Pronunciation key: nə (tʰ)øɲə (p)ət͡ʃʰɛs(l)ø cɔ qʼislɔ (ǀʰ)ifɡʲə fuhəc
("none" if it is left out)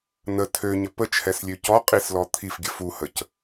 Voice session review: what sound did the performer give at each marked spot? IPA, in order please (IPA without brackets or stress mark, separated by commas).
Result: tʰ, p, lʲ, t̪ʰ